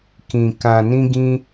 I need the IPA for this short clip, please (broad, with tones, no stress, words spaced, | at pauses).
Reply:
kĩ˨ kã˨nĩ˧ɡĩ˧